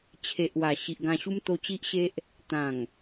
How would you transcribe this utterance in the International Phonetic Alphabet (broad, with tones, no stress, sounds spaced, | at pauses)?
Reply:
t͡ɕʰ e˨ ʔ w a˨˩ ɕ i˨ ʔ ɡ ã˧ ɕ u˦ m t̪ o˧ t͡ɕ i˦ ʔ ɕ e˦ ʔ | t̪ ã˨˩ ŋ